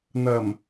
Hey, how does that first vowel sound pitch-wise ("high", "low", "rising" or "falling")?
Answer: low